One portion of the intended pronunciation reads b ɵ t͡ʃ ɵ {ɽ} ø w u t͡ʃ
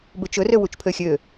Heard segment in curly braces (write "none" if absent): r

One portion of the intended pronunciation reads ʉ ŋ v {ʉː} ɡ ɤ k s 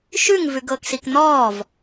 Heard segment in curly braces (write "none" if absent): ʉ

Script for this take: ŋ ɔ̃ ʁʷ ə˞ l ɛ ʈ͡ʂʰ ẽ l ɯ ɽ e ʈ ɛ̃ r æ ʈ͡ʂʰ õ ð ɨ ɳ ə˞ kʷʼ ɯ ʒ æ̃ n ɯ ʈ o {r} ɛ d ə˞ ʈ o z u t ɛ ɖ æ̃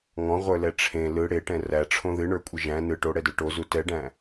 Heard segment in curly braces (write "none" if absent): ɽ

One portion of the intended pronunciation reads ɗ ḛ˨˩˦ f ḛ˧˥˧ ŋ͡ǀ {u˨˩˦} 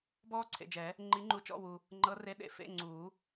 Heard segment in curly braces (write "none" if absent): uː˨˩˦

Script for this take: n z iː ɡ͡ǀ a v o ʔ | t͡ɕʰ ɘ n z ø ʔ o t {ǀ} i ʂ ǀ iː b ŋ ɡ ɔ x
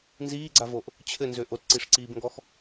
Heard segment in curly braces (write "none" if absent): ǀ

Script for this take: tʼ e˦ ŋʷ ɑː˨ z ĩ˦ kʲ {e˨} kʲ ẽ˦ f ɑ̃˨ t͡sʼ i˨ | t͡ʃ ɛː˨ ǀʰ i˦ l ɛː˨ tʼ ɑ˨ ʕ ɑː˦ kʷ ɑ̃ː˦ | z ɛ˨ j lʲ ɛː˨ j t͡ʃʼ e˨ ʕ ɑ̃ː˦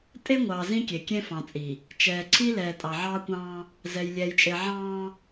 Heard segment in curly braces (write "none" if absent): e˨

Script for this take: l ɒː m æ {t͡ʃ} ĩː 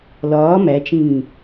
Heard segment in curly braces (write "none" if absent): t͡ʃ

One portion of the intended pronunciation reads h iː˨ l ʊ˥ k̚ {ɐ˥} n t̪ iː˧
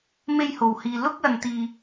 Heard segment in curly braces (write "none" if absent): ɐ˧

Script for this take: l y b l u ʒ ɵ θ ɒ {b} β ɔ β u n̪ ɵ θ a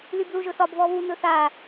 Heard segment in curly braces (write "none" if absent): b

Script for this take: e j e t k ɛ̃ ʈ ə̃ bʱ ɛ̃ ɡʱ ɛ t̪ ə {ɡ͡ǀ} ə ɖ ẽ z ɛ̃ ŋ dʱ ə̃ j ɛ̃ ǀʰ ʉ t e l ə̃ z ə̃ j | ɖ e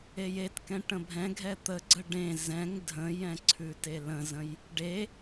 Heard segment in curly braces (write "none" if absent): ɡ͡ǀ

